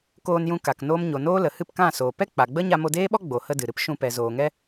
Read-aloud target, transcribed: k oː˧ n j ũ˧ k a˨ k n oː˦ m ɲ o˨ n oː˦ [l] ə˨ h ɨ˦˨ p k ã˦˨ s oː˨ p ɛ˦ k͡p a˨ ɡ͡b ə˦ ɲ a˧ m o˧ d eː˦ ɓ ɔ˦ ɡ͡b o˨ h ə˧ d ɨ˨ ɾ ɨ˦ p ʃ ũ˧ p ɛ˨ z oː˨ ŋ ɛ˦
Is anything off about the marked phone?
no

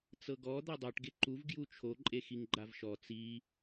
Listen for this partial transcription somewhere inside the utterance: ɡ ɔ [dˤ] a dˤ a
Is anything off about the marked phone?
yes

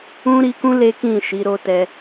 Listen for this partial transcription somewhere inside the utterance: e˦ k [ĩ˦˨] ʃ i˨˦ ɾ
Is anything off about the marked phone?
no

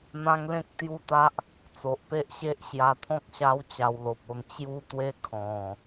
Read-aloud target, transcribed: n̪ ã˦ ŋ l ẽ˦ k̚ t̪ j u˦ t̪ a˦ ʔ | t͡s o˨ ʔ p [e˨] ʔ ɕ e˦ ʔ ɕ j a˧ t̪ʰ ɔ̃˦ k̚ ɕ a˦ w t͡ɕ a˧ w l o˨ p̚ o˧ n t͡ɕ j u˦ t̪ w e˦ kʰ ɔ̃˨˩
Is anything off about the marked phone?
yes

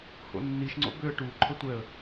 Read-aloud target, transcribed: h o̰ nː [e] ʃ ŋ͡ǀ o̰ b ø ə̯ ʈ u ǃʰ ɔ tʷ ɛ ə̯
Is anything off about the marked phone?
yes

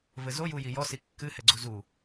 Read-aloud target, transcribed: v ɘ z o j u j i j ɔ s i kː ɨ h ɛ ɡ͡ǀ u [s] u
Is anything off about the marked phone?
yes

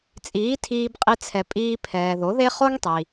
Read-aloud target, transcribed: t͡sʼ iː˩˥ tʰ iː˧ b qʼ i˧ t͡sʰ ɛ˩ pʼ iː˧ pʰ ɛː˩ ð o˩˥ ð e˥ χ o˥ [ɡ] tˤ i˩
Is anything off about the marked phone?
yes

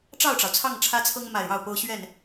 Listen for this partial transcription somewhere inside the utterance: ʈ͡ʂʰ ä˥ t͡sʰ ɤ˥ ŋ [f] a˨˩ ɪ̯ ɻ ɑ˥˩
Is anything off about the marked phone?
yes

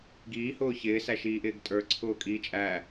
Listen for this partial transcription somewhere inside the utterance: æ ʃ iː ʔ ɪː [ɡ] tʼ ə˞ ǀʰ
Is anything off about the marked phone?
no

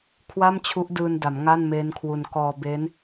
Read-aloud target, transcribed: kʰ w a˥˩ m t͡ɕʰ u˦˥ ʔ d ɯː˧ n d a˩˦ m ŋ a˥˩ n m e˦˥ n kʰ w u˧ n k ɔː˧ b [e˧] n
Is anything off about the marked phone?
yes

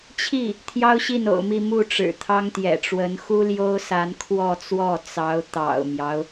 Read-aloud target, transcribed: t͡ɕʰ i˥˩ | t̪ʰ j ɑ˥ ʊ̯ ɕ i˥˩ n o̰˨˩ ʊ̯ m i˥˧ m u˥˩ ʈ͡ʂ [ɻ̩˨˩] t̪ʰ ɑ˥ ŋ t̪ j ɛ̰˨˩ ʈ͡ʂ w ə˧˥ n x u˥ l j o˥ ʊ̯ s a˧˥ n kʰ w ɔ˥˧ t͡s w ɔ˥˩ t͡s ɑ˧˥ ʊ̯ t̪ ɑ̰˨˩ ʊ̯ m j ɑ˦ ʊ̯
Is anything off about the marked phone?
no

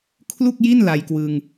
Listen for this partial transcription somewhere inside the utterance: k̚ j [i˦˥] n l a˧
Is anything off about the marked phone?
yes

